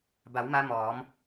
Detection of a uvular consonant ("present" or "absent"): absent